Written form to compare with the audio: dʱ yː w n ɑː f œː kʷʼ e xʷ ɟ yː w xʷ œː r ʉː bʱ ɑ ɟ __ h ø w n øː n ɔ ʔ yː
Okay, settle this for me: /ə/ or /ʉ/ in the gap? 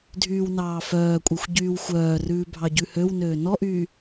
ʉ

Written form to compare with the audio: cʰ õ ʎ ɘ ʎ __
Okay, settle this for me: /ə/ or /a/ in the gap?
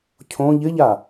a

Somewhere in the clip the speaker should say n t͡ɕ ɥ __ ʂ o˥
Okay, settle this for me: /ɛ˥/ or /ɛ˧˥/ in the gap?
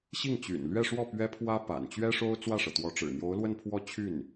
ɛ˥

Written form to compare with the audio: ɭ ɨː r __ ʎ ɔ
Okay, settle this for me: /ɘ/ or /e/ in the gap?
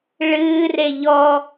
e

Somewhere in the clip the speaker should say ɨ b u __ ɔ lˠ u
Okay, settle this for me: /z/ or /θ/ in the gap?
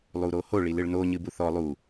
θ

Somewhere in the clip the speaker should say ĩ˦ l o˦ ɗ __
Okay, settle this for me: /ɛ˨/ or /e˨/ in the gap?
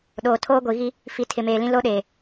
e˨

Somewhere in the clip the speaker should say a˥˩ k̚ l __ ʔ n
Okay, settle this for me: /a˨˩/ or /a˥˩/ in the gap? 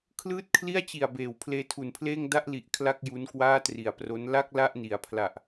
a˥˩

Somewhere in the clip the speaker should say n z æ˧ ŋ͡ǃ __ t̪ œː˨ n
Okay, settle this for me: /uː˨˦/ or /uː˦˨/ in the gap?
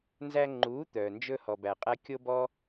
uː˨˦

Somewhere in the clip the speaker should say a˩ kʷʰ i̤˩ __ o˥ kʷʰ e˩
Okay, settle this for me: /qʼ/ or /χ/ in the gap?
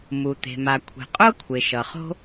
qʼ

